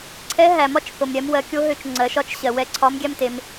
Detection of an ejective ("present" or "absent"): absent